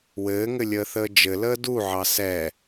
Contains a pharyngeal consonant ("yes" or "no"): yes